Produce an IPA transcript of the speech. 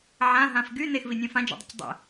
ʕ ã ɦ ã f ɡ y n e x v i nʲ œ̃ f ã d͡ʒ ɔ̰ dˤ ə̰ c dˤ ə̰

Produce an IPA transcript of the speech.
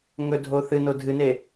ŋ ɵ dʱ o θ ɨ n o dʱ ɨ n e

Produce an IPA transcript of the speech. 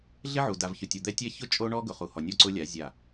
ɮ ɪ˦ ʕ u˨ d a˨ v ç ʊ˨ tʲ o˨ d̪ ɛ˦ tʲ ɛ˦ ç ʊ˦ t͡ʃʼ o˦ ɳ ɔ˦ ɡ ʊ˨ χ u˨ h ɔ˨ nʲ ɔ˦˨ ǀ ʊ˦ lʲ a˨˦ zʲ a˦˨

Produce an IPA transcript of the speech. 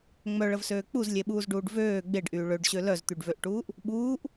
ŋ͡m œ ɭ ə v s øː k͡p u z lʲ e ɓ uː z ɖ uː ɖ v øː ɡ͡b e ɖ ʔ yː ɭ ø ɖ ɕ ø l œ z t̪ y ɖ v ø ʔ ʈ uː ʔ | ɓ uː ʔ

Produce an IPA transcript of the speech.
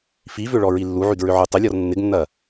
f i v ʏ ɭ ɔ ɹ i lː u ʕ y d ɹ ʏ ʕ y tˤ ɪ lʲ ɔ r nː ɪ ɡ nː ɐ

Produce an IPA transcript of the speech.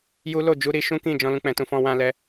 j u˦ l o˦˨ d͡ʒ u˧ ɾ i˧ ʃ ũ˦ k ĩ˦˨ d͡ʒ ɔ̃˧ l ũ˧ k͡p ɛ̃˨ t ũ˧ f ɔ̃˧ w ã˧ l ɛ˧

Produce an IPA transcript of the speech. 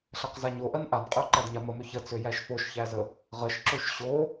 ɬ æ q z a ɲ o ʔ ɜ n ʔ a n qʼ ø ǃ æ d ɲ a m ə m ø ç ə t͡s ø j æ ʃ f o ʃ ç æ z ə | ʁ ə ʃ ǁ ø ʃ ɕ o

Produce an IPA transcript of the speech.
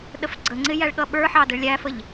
ɗ ə f ɡ͡ǀ ə ŋ͡ǀ ɪ j æ ɭ ɠ ʌ ɓ ə˞ ħ ɑ d ə ɭ lʲ æ f ə ʎ

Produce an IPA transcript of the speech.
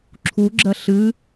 ǁʰ u ɡ͡ǁ ɜ ɬ ɨ

